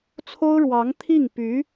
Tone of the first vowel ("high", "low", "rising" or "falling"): high